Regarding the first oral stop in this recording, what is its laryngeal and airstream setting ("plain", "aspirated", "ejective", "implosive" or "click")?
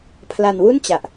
aspirated